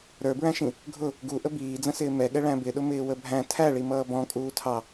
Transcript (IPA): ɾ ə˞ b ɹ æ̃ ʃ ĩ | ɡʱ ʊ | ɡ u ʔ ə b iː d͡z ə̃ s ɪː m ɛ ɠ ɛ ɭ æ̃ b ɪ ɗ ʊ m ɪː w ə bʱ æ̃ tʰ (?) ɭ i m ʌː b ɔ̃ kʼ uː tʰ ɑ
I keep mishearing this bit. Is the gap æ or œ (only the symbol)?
æ